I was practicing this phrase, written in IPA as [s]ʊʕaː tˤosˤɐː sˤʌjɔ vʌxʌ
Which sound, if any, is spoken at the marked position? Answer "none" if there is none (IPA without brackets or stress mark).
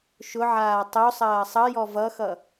ʃ